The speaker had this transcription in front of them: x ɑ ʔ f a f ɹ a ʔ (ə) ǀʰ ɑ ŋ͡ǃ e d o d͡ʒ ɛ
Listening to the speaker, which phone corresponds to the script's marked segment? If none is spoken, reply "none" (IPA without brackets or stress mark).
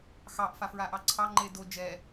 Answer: ɑ